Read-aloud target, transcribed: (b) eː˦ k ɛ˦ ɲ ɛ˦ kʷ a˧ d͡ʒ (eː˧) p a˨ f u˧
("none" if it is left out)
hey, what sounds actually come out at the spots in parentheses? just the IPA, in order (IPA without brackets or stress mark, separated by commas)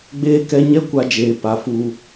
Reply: ɡ͡b, eː˨